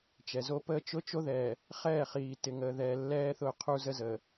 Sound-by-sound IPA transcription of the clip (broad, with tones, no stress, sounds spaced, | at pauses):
t͡ʃ ɛ˨ z o˦ p əː˦ t͡ʃ ʊ˦ t͡ʃ o˦ ð ɛː˨ | χ ɛː˦˨ χ iː˨ t ɪ˨ ŋ əː˨ ð ɛː˨ lː ɛː˦ θ ʊ˦˨ qʰ u˦ z ə˦ z əː˨